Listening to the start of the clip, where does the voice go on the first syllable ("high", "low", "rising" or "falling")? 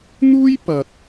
high